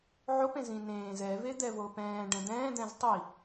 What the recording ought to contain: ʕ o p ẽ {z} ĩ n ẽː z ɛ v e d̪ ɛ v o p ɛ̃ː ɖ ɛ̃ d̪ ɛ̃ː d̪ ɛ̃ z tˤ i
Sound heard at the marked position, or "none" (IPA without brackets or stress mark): z